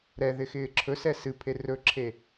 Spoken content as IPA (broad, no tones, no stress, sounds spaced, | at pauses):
ɾ ɛ ð ɪ x ɪː ǁʰ ɵ s ɛ s ɨ pʰ e r ɵ ǁʰ e